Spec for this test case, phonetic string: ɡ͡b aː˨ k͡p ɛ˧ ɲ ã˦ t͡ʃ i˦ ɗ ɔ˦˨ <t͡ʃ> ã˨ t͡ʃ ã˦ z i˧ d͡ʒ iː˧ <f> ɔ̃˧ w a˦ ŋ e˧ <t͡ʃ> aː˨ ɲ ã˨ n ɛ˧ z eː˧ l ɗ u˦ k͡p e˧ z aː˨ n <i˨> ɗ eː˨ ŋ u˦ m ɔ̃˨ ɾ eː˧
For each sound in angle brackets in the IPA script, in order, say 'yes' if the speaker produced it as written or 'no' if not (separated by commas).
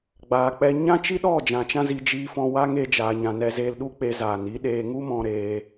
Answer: no, yes, no, no